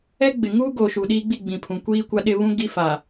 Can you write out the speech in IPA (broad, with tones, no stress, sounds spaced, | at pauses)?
ɛ˦ ɡ͡b ɪ˨ ŋ uː˦ ɡ oː˨ ʃ u˨ ɗ iː˦ ɡ͡b i˦˨ ɡ͡b ĩ˨ pʰ ũ˨ kʷ iː˦ kʷ a˦ ɗ ɪ˦ β ũ˦ ɡ i˦ f a˨